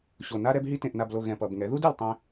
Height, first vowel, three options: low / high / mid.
mid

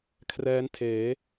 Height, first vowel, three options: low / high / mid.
mid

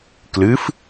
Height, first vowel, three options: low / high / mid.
high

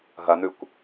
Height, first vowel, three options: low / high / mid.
low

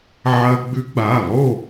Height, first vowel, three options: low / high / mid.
low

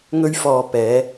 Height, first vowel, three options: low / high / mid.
mid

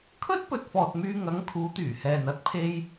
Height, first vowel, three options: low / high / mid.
mid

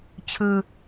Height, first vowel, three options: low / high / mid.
high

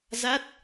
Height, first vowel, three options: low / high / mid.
low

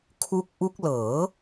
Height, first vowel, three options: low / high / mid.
high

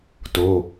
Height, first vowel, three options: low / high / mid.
mid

